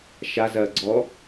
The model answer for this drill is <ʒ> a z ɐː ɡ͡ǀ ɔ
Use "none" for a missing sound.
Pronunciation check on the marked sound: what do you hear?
ʃ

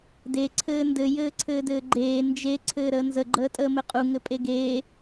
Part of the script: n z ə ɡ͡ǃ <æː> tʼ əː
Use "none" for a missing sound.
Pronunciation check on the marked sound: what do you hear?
əː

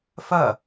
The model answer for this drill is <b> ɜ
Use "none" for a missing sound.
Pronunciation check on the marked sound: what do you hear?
f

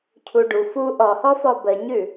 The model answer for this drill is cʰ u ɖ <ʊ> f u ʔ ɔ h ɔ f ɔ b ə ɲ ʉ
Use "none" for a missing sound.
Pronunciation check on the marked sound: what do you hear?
u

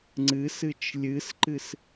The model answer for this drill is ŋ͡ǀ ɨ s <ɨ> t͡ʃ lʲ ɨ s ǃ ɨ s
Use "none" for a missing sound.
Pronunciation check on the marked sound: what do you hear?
ɨ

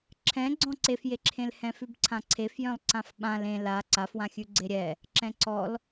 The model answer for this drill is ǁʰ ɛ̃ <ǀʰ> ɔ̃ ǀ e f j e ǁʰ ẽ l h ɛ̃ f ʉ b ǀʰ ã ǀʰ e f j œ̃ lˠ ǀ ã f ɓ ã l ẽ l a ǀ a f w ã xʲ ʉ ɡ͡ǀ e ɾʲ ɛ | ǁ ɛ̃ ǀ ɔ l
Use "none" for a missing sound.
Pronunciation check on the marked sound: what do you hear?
ɡ͡ǀ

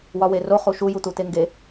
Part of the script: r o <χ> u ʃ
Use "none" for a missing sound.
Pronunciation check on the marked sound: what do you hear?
χ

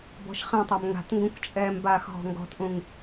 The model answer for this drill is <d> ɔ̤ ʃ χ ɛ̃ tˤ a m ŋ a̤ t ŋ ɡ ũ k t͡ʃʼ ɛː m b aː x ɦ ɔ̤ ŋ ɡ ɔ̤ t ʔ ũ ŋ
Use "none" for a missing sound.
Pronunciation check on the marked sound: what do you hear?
b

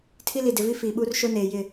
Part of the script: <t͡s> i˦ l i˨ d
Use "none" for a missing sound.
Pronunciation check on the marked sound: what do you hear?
tʰ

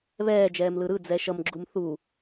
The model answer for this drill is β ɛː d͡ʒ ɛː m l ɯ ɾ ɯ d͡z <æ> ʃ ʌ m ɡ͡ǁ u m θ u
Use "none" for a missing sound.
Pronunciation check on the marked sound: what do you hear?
ɛ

